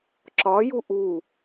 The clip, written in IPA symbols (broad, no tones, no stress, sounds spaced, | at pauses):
ǁ ɒ j u ʔ u